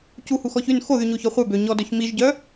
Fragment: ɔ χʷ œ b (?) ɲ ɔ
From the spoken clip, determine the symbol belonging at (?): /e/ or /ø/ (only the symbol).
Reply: ø